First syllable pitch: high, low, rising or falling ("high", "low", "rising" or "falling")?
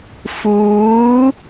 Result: rising